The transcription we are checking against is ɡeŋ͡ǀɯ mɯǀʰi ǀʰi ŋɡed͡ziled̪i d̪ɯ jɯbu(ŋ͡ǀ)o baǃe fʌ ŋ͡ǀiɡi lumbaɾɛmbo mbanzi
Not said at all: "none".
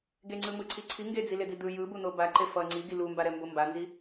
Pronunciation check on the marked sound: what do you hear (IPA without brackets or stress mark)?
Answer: n̪